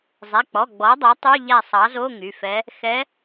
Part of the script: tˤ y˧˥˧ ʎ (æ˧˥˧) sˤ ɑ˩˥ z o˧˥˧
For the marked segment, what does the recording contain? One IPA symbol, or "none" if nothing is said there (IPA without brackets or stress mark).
æ˦˨